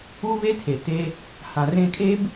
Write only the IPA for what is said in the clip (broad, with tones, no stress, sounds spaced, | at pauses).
u˦ β e˦ tʰ e˨ t e˦ | h ã˨ r ẽ˦ kʼ e˦ b